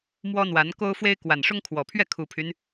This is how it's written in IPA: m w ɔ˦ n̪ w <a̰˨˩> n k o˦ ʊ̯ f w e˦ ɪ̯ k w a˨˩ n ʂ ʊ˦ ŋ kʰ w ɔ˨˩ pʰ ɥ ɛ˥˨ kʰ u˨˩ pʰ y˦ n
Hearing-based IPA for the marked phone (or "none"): a˨˦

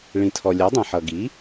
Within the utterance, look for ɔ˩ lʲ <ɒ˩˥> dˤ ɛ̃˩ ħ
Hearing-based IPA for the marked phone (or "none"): ɒ˩˥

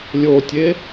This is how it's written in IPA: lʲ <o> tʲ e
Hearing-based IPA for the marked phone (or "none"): o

